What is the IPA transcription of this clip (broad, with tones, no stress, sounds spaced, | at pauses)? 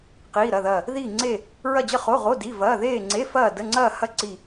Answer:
q iː˧˥˧ ɾ ɐ˧˥˧ ð ɐː˥˧ | ð iː˥˧ ŋ͡ǀ e˥˧ | ɹ ɐ˥˧ d͡ʑ ə˥˧ χ o˧˥˧ ʁ o˧˥˧ d i˧˥˧ v ɐː˧˥˧ ð eː˥˧ ŋ͡ǀ e˧˥˧ f ɐː˥˧ d ə˧˥˧ ŋ͡ǀ ɐː˥˧ h ɐ˥˧ ǀ i˥˧